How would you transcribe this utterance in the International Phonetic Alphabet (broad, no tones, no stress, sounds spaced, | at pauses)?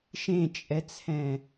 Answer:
ʃ ẽ t͡ʃʼ ɛ t͡sʰ ɛ̃